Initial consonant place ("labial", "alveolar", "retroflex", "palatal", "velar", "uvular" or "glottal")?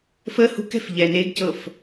labial